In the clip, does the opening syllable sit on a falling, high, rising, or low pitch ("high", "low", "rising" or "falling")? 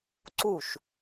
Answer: falling